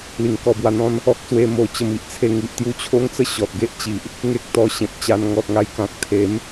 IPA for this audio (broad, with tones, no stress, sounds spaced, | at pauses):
l i˧ ŋ k ɔ˧ b w a˧ n̪ ɔ̃˦ n | ɔ˦ k̚ s w e˧ m o˧ t͡ɕ ə˧ m i˨ ʔ t͡sʰ e˧ ŋ i˨ ʔ t̪ j u˦ t͡ɕʰ o˦ ŋ t͡s ə˥˧ ɕ ɔ˨ t̚ ɡ e˦ ʔ t͡ɕ i˨ ʔ | ŋ e˦ k̚ t̪ ɔ˧ ɕ ẽ˨ p̚ t͡ɕ a˧ n ŋ ɔ˨ t̚ ŋ a˧ j k ã˨ k̚ t̪ʰ e˨˦ m